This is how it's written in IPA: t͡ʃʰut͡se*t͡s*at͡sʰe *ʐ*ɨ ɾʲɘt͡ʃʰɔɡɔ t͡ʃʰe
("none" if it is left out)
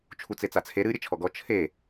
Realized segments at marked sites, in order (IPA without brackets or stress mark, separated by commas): t͡s, ɾ